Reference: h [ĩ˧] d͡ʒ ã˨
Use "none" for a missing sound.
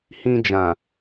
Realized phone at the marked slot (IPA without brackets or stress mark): ĩ˧